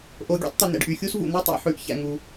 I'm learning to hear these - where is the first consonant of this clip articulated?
throat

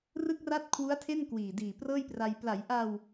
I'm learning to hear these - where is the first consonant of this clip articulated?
tongue tip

